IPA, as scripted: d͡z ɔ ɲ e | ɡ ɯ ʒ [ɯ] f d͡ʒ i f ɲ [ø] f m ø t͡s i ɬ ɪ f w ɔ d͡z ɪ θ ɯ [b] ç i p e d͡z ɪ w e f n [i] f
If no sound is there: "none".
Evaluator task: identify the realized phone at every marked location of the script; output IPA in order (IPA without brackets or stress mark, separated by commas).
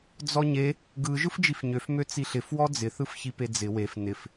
ɯ, ø, f, ɪ